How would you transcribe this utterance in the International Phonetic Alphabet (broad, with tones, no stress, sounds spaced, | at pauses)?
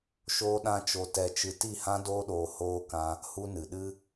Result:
ʃ oː˦ ɗ ã˦ t͡ʃ o˧ t ɛ˧ t͡ʃ ɨ˧ t i˦˨ h ã˦ d oː˦ ɗ oː˧ h oː˦ k ã˦ | h u˧ n ɨ˨ ɗ ɨ˦